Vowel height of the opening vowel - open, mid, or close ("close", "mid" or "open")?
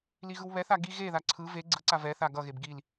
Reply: close